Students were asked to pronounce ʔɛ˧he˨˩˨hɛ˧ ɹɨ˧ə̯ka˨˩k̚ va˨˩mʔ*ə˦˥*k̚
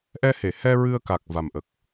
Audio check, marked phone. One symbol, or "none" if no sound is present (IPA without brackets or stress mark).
ə˨˩